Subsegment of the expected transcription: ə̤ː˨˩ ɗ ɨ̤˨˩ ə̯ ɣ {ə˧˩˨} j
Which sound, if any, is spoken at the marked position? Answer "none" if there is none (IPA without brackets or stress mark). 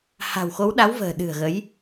ə˨˦